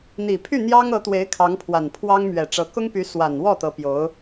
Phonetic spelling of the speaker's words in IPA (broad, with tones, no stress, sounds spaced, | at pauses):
n̪ i˨˩ pʰ y˥˩ n̪ j ɑ˥ ŋ ɤ˧˥ t̪ w e˧˥ ɪ̯ kʰ ɑ˧˥ ŋ pʰ w a˨˩ n pʰ w ɑ˥ ŋ m ɥ ɛ˨˩ ʈ͡ʂ ɤ˧˥ k ʊ˥ ŋ p y˧˥ s w a˨˩ n w ɔ˥˩ t̪ ɤ˧˥ p j o˧˥ ʊ̯